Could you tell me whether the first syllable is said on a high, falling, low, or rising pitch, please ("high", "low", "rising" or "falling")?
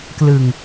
low